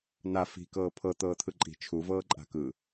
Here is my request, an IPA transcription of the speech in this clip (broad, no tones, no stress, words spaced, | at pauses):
na fi̤kɤː pʰɤ t̪ɤːt̪ʰɯǃʼi̤ t͡ʃʰuvɤː ǃʼa̤kɯ